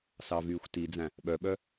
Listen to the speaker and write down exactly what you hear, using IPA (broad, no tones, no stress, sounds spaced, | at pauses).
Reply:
s ɑ v yː xʷ t i d͡z æ̃ | ɓ œ ɓ œ